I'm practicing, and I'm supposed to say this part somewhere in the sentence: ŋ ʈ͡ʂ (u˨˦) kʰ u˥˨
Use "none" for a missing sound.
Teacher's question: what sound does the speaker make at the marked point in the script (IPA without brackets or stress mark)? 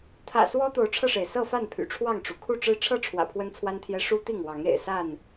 u˩